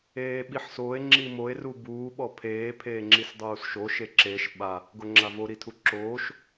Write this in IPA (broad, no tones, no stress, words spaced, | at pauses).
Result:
eːɓiħsoːe̯ ŋ͡ǁimoe̯ rubuː ɓɔpʰeː pʰeːŋ͡ǁisdˤuːsʃo ʃeǁeʃ ɓa | ɡoŋ͡ǁavo ɾitʰuǁoːʃ